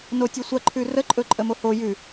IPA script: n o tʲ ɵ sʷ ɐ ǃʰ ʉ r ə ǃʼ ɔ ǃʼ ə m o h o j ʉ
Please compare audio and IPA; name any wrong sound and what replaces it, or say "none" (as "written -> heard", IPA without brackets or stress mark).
ɔ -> ɵ